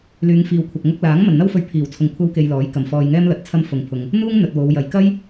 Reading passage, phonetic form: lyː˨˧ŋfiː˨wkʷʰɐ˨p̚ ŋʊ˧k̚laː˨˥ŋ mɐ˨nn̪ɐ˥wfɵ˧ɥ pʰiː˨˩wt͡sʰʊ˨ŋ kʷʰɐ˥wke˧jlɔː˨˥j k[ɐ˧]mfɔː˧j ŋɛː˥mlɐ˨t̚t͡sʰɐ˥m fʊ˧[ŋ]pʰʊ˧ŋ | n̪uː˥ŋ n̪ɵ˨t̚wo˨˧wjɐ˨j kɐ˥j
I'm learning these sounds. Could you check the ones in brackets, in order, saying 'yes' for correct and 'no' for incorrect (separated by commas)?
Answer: no, yes